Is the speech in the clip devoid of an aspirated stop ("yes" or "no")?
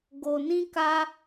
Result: yes